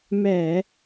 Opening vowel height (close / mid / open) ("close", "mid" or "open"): mid